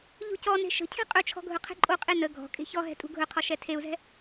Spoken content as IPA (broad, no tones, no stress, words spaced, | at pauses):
ʎṳcɔne̤ ʃə̤cʰɛ̤ qʼɵt͡ʃʰɔ̤ ɡʱɵqʰɛ̤ǃʼoqʼe nə ɡʱɔ̤ kʼe̤çɔɦɛ̤ tʼṳɡʱɵqʰɔ ʃɛtʰeu̯zɛ̤